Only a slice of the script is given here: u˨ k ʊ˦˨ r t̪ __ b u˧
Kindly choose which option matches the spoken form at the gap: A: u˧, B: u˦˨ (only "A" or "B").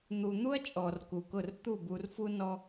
B